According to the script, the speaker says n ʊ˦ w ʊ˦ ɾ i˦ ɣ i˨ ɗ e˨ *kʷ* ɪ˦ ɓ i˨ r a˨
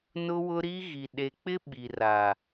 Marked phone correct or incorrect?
incorrect